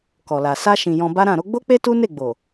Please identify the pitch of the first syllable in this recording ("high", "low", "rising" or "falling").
low